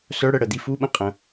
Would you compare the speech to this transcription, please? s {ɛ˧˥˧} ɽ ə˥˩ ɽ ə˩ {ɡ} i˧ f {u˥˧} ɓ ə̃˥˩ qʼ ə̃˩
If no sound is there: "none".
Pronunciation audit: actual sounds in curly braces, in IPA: œ˧˥˧, d̪, u˧˥˧

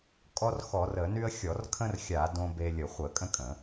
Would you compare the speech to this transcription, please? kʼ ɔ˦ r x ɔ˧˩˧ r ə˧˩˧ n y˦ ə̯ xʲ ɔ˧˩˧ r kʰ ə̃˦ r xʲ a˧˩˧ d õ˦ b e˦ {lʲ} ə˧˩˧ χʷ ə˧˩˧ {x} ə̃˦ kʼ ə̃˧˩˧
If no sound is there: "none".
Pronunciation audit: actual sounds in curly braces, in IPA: lʲ, kʼ

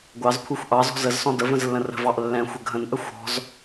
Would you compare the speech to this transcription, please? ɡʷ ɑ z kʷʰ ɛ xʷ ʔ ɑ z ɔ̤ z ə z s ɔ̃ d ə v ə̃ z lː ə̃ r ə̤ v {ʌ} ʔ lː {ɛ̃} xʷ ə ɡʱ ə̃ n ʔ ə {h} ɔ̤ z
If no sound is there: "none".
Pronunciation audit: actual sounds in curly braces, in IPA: ɑ, ɛ̃, xʷ

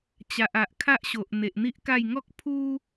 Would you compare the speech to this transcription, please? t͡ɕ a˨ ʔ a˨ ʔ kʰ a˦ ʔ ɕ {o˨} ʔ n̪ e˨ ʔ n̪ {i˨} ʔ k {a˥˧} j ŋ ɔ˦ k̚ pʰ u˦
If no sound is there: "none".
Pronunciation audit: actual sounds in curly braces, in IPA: o˨, i˦, a˥˧

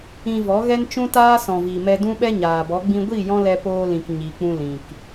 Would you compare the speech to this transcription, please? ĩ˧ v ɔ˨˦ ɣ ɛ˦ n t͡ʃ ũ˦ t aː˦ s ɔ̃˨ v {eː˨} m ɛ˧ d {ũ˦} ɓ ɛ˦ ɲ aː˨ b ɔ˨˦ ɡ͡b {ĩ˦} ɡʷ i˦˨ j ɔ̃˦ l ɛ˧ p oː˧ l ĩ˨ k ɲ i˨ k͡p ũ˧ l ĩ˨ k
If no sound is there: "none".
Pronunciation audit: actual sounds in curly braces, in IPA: iː˨, ũ˦, ĩ˧

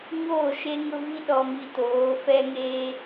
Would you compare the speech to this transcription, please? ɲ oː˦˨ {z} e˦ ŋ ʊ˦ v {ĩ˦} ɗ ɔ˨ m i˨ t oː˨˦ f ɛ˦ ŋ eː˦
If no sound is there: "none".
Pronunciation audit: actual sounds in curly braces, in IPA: ʃ, i˦

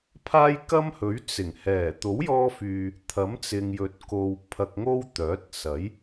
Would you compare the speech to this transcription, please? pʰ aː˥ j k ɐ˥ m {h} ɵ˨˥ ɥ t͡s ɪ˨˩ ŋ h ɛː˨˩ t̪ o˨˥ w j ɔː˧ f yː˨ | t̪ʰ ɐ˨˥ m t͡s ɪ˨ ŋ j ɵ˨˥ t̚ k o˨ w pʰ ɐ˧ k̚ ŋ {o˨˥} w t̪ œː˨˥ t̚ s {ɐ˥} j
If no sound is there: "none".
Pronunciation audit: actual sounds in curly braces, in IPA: h, o˥, ɐ˨˥

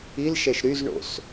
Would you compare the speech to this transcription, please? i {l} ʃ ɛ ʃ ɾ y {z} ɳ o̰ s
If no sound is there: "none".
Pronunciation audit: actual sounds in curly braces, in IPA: l, z

